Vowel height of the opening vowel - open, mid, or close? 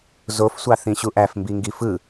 mid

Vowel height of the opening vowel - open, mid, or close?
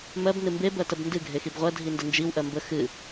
mid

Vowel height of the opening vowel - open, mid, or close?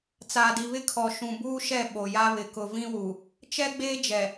open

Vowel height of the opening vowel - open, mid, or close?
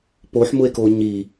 mid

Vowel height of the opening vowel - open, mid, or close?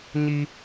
close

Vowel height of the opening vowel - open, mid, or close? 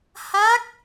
open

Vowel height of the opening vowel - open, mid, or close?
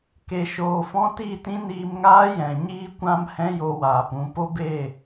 mid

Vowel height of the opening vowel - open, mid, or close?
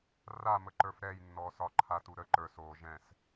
open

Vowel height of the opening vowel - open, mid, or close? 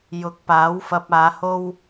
close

